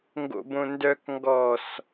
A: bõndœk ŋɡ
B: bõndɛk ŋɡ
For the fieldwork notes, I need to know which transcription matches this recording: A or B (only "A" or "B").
A